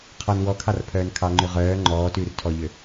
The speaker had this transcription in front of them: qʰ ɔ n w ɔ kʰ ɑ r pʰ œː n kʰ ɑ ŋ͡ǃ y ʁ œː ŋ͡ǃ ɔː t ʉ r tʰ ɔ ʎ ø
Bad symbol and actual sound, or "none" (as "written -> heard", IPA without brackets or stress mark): none